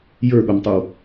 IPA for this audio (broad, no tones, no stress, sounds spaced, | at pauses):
j ə˞ ɠ o m tˤ ɯ w